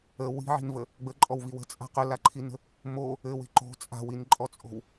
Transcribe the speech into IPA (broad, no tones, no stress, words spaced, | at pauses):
ə wi̤ʕi̤nvə | ɡ͡bəǃʼɔwvi wə̤t͡sʼa̤ qɵlaǃʰinə̤ | mo | ɘwe̤ ǃo̤ t͡sʼa̤winǃʼɔt͡sʼo̤w